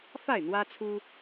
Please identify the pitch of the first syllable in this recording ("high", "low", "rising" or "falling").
falling